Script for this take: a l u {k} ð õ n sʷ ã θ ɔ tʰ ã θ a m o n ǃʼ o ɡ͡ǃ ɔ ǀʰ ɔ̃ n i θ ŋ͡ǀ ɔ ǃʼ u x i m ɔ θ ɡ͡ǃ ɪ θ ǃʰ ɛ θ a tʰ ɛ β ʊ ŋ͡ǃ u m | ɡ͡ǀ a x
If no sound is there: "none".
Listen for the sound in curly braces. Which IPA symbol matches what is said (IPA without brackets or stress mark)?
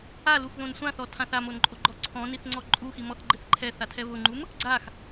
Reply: x